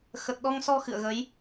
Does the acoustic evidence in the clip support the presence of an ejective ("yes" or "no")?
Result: no